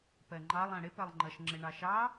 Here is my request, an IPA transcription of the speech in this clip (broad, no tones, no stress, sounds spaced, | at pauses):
p ɜ ŋ͡ǃ ɑ lˠ æ̃ ɽ ɪ p ɜ lˠ ŋ͡ǃ ʌ ʃ ŋ͡ǁ ɪ ɳ ɑ ʃ ɑ